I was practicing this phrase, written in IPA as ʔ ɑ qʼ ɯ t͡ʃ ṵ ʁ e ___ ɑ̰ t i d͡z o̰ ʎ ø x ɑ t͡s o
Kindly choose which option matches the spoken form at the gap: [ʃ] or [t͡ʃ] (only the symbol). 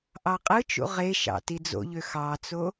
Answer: ʃ